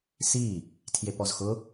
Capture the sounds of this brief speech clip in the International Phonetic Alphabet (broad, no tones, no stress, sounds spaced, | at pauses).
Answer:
s i | tʰ j e p ɔ z x ʊ